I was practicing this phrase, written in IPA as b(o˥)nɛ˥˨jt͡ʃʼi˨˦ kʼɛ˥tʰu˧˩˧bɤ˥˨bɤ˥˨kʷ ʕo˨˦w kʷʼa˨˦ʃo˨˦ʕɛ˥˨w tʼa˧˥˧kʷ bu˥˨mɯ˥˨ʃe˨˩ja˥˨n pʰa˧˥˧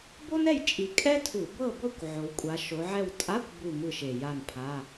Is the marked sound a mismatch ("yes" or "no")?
no